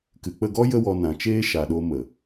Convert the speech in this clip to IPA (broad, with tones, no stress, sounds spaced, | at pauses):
k ɨ˨ k͡p ə˦˨ ɡ ɔ˦ j ə˦ w ɔ˧ n ã˨ t͡ʃ eː˦ ʃ a˨ ɗ o˧ m ə˨